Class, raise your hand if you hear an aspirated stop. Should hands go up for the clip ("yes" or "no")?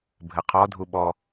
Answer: yes